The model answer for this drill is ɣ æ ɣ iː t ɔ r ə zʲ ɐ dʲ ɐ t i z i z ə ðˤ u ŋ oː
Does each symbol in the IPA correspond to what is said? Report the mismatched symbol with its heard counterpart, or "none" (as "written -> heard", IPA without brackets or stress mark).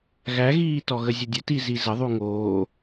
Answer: r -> ɣ